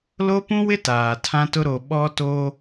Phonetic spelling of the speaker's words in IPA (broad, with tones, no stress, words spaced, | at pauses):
lo˦pũ˦wɪ˦ taː˨tʰã˦tʊ˦ ɾo˨ɓɔ˦to˦